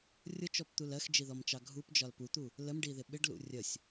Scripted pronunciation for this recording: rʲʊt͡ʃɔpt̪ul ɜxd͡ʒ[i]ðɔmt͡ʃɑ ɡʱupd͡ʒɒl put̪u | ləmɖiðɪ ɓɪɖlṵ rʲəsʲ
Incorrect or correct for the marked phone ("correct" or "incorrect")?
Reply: correct